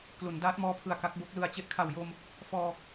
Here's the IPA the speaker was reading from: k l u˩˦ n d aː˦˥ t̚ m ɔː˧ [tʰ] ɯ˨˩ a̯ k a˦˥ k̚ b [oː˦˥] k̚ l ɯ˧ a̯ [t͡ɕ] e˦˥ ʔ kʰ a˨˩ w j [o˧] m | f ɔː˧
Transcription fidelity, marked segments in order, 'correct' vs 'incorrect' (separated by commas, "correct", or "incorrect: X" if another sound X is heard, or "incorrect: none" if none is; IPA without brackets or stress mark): incorrect: pʰ, incorrect: o˦˥, correct, correct